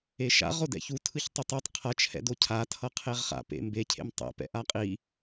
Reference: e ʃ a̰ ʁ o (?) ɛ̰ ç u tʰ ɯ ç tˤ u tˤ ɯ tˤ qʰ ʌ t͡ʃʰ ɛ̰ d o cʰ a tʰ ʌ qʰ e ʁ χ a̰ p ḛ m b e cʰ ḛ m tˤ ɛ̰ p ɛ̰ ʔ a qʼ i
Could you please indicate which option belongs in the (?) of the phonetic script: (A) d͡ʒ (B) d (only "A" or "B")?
B